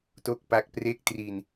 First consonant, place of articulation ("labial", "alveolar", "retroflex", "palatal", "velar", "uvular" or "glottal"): alveolar